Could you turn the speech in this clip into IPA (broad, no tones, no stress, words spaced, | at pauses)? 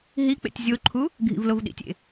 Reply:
ɦik͡pḛtʲ zʲoǃʰu | ɡʱḭvlovɗḭtʲḛ